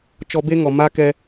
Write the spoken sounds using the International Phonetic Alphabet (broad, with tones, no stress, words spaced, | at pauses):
t͡ʃɔ˧be˦ŋɔ˨ ma˦kɛ˧